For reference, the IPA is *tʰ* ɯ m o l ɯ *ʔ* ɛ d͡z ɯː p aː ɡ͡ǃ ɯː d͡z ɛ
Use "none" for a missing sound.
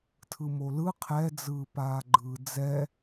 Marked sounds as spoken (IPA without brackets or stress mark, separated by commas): tʰ, qʰ